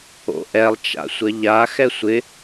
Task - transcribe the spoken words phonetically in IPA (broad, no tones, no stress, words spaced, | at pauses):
o̰ʔɛlˠt͡ʃa̰ sʷɐʎa xɛsʷɪ